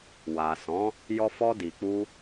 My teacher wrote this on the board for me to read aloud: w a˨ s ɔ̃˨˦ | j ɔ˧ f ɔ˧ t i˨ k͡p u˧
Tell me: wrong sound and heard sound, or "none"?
t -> d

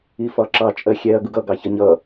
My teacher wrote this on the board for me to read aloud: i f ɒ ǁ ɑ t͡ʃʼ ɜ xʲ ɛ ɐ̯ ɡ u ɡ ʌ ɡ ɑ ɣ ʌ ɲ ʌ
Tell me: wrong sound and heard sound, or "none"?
ɣ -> ç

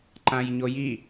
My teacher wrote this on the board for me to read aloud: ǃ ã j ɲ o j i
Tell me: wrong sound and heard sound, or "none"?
none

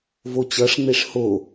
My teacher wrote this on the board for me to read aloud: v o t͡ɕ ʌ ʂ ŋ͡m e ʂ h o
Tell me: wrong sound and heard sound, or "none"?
none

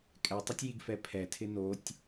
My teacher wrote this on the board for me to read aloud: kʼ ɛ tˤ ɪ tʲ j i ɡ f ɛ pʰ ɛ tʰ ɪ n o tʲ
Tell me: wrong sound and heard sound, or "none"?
none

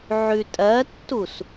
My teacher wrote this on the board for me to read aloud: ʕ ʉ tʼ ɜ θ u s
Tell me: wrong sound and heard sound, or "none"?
θ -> tː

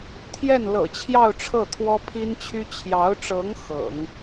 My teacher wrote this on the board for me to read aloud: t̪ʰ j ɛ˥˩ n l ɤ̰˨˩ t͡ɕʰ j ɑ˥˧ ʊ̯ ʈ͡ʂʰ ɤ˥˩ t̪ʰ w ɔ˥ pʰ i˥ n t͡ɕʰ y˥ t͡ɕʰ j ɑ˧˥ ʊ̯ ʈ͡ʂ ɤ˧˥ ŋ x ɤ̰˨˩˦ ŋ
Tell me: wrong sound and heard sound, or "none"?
none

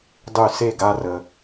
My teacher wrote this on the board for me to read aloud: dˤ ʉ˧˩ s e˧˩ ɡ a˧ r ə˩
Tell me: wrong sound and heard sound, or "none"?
none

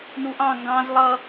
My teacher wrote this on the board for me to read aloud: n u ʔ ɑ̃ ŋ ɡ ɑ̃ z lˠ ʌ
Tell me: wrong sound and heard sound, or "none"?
none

